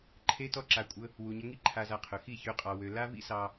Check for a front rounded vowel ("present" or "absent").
present